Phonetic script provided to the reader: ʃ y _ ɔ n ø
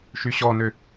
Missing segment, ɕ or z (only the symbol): ɕ